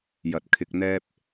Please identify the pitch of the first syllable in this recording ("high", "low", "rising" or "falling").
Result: low